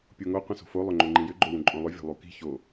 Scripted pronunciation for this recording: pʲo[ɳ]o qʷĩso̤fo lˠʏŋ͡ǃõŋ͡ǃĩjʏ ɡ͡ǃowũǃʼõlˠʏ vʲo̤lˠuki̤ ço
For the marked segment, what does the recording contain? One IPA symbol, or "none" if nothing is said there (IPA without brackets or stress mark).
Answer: ŋ